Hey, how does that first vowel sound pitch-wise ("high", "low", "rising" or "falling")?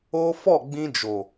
high